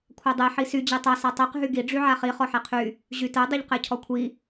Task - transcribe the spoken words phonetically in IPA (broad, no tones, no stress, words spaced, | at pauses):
kʷʰadˤe ħisy d͡ʑetˤa satˤɛq ɦyɡi ɖ͡ʐyʕaχi χɔħɛqʰy | ʑytɛ dˤyʎqɛcʰɔkʷʰi